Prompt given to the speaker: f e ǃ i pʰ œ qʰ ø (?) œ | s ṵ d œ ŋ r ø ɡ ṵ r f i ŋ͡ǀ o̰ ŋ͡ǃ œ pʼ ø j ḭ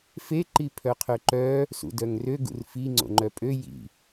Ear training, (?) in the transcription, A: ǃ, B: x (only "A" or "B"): A